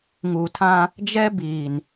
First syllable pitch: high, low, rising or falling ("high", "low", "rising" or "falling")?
low